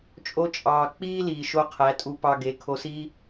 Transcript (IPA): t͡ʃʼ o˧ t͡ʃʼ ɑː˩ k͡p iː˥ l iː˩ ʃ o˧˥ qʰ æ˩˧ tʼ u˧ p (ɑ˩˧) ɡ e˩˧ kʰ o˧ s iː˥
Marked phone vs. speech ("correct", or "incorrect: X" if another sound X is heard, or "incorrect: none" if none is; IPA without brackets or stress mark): incorrect: ɑ˧